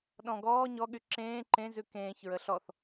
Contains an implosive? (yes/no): yes